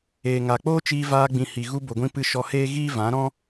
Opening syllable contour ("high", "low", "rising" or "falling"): low